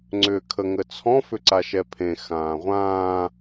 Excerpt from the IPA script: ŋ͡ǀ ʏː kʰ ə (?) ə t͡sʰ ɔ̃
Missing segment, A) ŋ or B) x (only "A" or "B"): A